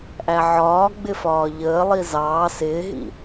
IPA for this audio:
ʔæʕɒː ɡ͡bɪfɒːʎəː lˠizɑː sɪːɦḭ

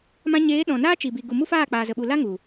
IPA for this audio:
mã˧ɲeː˨˦ ɗɔ̃˨naː˦t͡ʃi˨bi˨ ɡu˨mu˦faː˦˨ k͡paː˨zə˨ɓu˨ la˦ŋu˨

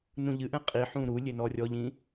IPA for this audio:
nũʎɨʔɛ̃ qʼiħũ ɾu lʲenɔrʲɔʎĩ

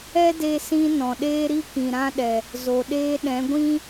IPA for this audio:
ɛ˦de˧sĩ˧ nɔ̃˨ɗeː˦ɾi˦ kĩ˨ɾã˦ɗɛ˨ | zo˨ɗeː˦ ɗɛ̃˨˦ɡʷĩ˦

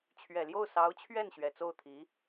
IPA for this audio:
t͡ɕʰɥɛ˨˩ljo˥˩ʊ̯sɑ˧˥ʊ̯t͡ɕʰɥɛ˥˩n ɕɥɛ˨˩t͡so˥˩ʊ̯t̪ʰi˧˥

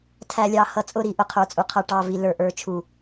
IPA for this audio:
tʰæ˨lʲɑ˨ hʌ˨t͡sʼʊ˦˨ɾi˨ ʔʊ˨qʰə˞˨t͡sʼu˨qʰʌ˨ ʈɑ˨vi˨ lə˞˨ʔə˞˨t͡ʃʰu˨

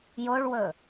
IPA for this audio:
joɭwɵ

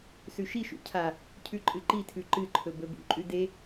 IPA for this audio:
sʉʃiʃṵ cʰa | cʰʉǃʼɨǃitʰʉ ǃɨǃʰɵ bɵbṵǃʼʉ de

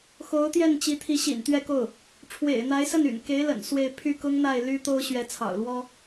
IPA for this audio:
xo˧˥ʊ̯t̪jɛ˥˩n t͡ɕi˧˥t̪ʰi˧˥ ɕḭ˨˩n t̪ɥɛ˥˧ko˥˩ʊ̯ | ʈ͡ʂʰwḛ˨˩ɪ̯n̪a˧˥ɪ̯sə˥˩ny̰˨˩n ke˧˥ɪ̯ lə̰˨˩nswe˥˧ɪ̯ pʰy˥˩kʊ˥ŋn̪a˥˩ɪ̯ ly˥ t̪o˥ʊ̯ ɕɥɛ˧˥t͡sʰɑ̰˨˩ʊ̯lwɔ˥

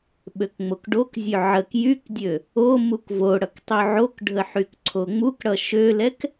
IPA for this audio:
ɓøkŋ͡mokɖokzʲø ʕək jykdʲø | omuk vo ɽʌktˤyʕokɖʱə ħykǀʰoŋ͡mukɽʌ ʃølɛk

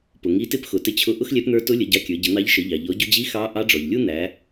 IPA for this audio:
pʊ˩ŋi˧˥tɪ˥p xʊ˩˧tɪ˧t͡ɕʰʊ˧˥ ʔʊ˥xlʲɛ˧˥pn̪ə˞˧˥ tʊ˧˥lʲə˩˧ ɟɑ˧kʲə˞˩˧ ɟə˩˧n̪ɑ˧˥ʎ ʃə˩˧ʎɑ˩ ʎɔ˩˧ɟʊ˧d͡ʑi˧˥ xɑ˧˥ ʔɑ˧˥ɖ͡ʐɔ˩ʎlʲu˥ n̪æ˩˧

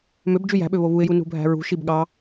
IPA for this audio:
møb d͡ʒyjæ̤ɓø βoβuɪ̯ju nṳbʱæ̤ɹṳʃib ɠɑ

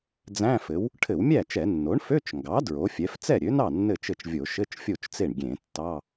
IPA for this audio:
d͡zæ̃˧˥˧fɘ˩˥w | ʈʰɘ˧˩˧wmʲæ˥˩t͡ʃɛ˧˩˧ nːo˩˥ɳfø˧˥˧t͡ʃŋɡɑ˩˥ dɹo˩˥fʲɛ˩˥f t͡sɛ˥˩ɾʲø˩˥nɑ˥˩ nːɘ˥˩t͡ʃɘ˥˩t͡ʃvʲo˧˩˧ ʃɘ˧˥˧t͡ʃfʲo˥˩t͡ʃt͡se˥˩ɳ ɡʲẽ˧˩˧ tːɑ˧˥˧

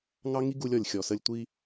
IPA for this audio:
ŋɑ˦ŋi˦ ɡu˦lʲɔ˨lʲxʲɔ˨sə˦lʲ tʷi˦

